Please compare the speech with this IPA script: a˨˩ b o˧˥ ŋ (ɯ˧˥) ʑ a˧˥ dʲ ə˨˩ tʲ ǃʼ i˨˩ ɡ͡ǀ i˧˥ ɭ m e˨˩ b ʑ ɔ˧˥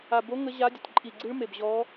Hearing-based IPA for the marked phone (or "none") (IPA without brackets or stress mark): ə˧˥